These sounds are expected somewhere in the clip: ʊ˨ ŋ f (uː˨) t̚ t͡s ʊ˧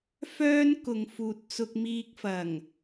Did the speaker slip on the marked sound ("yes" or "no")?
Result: no